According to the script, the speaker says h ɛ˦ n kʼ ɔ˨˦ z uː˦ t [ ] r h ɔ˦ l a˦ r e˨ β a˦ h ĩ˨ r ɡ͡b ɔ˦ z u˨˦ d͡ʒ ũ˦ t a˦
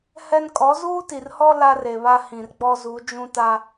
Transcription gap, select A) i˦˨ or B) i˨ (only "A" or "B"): B